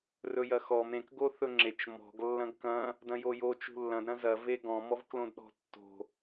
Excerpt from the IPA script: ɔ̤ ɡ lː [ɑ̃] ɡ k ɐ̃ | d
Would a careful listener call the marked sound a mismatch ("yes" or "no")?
yes